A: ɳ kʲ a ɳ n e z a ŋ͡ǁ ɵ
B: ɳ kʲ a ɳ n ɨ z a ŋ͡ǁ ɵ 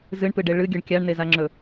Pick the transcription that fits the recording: A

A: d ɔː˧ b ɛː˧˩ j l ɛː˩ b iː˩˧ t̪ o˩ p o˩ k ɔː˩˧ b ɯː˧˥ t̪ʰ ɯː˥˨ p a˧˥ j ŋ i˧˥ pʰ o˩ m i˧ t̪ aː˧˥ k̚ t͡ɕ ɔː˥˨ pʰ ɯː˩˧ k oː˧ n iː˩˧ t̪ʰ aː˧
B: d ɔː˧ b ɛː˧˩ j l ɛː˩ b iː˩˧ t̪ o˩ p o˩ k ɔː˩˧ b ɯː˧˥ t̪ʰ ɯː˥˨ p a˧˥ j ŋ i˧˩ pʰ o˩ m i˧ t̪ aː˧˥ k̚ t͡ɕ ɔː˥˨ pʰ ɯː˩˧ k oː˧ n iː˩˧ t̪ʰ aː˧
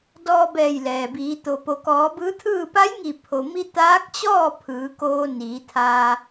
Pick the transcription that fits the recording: B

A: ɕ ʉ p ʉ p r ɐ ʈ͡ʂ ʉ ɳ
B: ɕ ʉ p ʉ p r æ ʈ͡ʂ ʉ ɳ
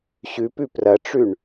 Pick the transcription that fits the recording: A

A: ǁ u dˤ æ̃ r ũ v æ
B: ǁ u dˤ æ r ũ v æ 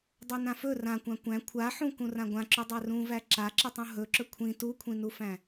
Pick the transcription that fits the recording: B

